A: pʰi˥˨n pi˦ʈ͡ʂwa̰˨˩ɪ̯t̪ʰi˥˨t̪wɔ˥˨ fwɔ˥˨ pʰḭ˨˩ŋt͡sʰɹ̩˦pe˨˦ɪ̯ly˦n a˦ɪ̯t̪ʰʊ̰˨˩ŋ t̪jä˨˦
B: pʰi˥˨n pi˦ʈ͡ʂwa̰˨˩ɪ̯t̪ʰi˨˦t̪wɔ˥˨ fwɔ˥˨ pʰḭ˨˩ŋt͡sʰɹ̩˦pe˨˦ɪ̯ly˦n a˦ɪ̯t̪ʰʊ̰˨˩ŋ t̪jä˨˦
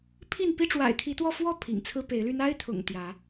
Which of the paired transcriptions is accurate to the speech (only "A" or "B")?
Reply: B